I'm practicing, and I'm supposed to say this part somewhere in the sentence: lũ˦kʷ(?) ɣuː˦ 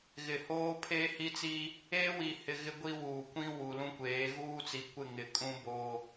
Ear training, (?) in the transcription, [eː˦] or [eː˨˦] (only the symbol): eː˨˦